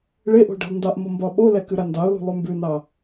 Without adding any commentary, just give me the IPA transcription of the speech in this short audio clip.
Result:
ɭ e ʔ o̤ ɖ e̤ lˠ n d ɑ ʔ m o m b ɒ ɓ o l ɛ k ʉ ɾ a n d ɑ ʊ̯ l ṳ lˠ ʉ m b ʉ n ɑ

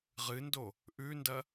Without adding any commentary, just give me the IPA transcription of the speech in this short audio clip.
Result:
ʁ ɨ n d o | ʔ ʉ n d ɐ

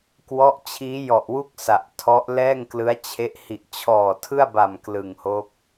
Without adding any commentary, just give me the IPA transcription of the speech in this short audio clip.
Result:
k w ɔ˦˥ ʔ t͡ɕʰ iː˦˥ j ɔ˨˩ ʔ w u˥˩ k̚ s a˨˩ ʔ tʰ ɔ˦˥ ʔ l ɛː˥˩ ŋ k l ɯ˦˥ a̯ t͡ɕʰ e˦˥ ʔ h i˨˩ ʔ t͡ɕʰ ɔː˨˩ tʰ ɯ˥˩ a̯ b a˨˩ m k l ɯ˨˩ ŋ h o˦˥ k̚

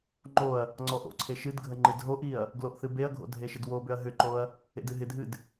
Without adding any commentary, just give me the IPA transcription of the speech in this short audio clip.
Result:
ŋ͡ǃ o ɐ̯ | ŋ͡ǀ ɔ ʔ o̰ ǀʰ e ʃ ɨ d ɡʱ ə ŋ͡ǃ ɨ d ɦ o ʔ i ɐ̯ | ɡ l o ʔ θ ɨ b e ɐ̯ ɡʱ o̰ dʱ e ʃ ɪ d w o b ʏ ɐ̯ ɦ ʏ ǃ o ɐ̯ | ḛ d ɨ ɦ ɪ dʱ ɨ d

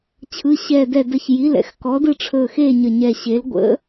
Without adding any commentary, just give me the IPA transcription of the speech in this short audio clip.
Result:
t͡ɕʰ ɯ˩˧˩ ɕ ɛː˧˩ d ɛ˧˩ d ə˧˩ ç j i˩˧˩ l ɛ̰˨˥ x k ɔ˨˥ d ɯ˥˨ ʈ͡ʂʰ ɵː˧˩ x e˥˨ ɲ ə˧˩ ɲ ɛ˧˩ ɕ e˨˥ l ɡʷ ə̰˨˥

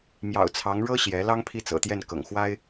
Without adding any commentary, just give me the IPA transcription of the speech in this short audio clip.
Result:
m j ɑ̰˨˩ ʊ̯ t͡sʰ ɑ˧˥ ŋ ɻ ɤ˥ ɕ j ɛ˧˥ l ɑ˥ ŋ pʰ i˥˩ t͡s ɤ̰˨˩ t̪ j ɛ˥˩ n k ɤ̰˨˩ ŋ x w a˥ ɪ̯

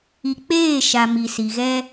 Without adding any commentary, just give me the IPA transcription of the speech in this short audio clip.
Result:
i˨ k͡p eː˦˨ ʃ a˨ m i˨ s i˨ ɣ ɛ˦

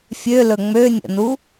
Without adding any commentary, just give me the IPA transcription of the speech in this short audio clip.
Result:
fʲ ø l ɵ ŋ͡m ø nʲ ə̰ n u

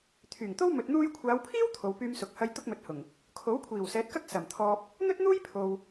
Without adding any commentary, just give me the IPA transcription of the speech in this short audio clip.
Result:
t̪ʰ yː˨˩ ŋ t̪ o˥ w m ɵ˨ t̚ n̪ uː˧ j kʷʰ aː˨˧ w pʰ iː˥ w t̪ʰ o˨˧ w p yː˥ m s ʊ˧ k̚ h ɐ˥ j t̪ ʊ˥ k̚ m ɵ˨˥ t̚ h ʊ˨˩ ŋ | kʰ o˨˥ w kʷʰ iː˨˩ w s ɛː˨˥ t̚ k ɐ˥ k̚ s ɐ˨˩ m t̪ʰ ɔː˧ p̚ | n̪ ɵ˥ t̚ n̪ uː˥ j pʰ o˨ w

